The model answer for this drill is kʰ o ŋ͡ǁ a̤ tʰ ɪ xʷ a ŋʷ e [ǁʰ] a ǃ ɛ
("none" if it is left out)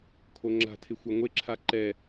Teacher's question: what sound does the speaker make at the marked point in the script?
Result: ǁʰ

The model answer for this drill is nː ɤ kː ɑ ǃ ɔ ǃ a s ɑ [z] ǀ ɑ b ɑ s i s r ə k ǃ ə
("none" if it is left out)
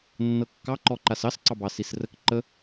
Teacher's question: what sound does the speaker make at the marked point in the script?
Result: s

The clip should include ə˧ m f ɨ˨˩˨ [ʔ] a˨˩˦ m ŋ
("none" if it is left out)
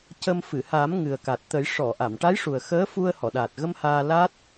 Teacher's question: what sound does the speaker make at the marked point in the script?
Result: h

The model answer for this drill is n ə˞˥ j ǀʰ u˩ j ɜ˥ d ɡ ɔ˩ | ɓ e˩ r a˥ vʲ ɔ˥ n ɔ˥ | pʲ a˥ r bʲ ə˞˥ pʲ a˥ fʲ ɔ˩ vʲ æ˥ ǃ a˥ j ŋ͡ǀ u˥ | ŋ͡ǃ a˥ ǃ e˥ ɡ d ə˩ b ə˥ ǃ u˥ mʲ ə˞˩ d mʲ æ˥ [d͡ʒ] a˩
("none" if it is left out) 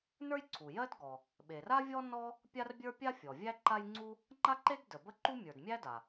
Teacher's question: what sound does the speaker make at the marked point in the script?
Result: d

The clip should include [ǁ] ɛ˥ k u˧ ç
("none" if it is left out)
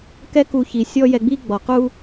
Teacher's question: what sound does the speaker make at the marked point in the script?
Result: k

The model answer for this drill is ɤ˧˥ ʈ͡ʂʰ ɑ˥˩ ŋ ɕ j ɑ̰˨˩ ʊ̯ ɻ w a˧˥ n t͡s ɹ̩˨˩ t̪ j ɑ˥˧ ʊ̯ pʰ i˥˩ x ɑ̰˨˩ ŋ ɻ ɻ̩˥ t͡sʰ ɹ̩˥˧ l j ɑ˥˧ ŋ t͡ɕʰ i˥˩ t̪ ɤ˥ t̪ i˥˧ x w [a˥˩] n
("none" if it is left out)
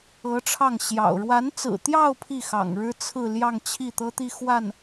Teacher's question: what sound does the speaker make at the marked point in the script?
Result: a˥˩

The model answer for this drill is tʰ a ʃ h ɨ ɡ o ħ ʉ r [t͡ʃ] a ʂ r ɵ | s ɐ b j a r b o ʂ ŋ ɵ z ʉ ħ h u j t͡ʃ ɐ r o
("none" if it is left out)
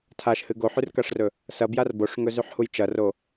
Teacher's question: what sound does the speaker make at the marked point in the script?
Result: k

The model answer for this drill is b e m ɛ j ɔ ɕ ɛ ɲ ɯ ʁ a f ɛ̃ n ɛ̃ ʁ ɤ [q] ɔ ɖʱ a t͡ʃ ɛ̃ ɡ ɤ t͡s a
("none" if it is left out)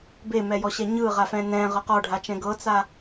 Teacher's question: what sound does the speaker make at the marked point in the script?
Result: q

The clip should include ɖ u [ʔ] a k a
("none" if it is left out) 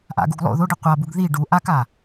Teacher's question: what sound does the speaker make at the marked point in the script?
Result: ʔ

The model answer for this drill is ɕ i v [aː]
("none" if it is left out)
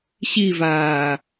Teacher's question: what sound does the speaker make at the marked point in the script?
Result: aː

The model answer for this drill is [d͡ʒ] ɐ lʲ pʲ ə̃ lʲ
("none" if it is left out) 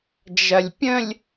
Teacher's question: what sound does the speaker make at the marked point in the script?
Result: d͡ʒ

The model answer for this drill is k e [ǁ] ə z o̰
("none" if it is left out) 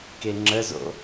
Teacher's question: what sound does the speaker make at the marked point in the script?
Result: ŋ͡ǁ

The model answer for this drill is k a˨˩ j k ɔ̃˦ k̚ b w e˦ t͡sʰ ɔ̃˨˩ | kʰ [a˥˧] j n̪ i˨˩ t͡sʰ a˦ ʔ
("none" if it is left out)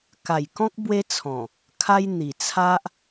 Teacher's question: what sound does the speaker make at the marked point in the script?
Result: a˦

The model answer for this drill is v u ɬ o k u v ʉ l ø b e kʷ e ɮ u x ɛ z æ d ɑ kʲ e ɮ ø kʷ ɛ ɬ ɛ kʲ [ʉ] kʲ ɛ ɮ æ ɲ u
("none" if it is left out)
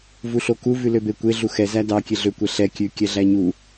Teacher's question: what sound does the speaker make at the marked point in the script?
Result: ʉ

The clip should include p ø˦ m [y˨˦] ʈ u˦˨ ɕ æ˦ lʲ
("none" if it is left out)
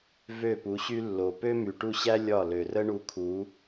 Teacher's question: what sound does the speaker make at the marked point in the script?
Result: y˨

